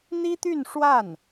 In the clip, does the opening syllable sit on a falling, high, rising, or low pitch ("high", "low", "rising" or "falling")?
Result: high